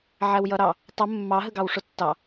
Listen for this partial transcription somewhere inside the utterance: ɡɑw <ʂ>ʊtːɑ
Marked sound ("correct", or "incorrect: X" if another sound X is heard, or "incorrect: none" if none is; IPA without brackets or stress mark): correct